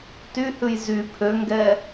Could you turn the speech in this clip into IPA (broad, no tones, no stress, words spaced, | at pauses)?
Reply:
tyhʉj zy pʰøŋɡɛ